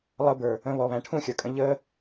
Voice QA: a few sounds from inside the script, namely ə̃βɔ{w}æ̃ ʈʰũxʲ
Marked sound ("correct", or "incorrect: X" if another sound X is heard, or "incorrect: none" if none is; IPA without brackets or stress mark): incorrect: β